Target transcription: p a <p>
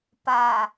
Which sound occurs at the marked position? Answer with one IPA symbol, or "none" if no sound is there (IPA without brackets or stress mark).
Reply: none